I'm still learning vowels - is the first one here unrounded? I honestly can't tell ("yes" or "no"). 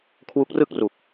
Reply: no